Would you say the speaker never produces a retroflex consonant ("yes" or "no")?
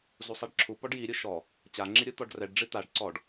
no